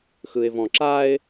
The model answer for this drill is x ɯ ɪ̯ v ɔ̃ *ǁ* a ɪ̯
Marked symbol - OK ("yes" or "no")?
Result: yes